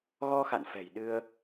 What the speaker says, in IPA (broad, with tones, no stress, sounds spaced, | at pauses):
ɣ ɔ˧ x a̰˧˨ n f ɛ̤˨˩ j ɗ ɨ˧ ə̯